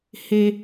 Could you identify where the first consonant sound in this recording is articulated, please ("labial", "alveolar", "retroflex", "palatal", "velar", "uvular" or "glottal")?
glottal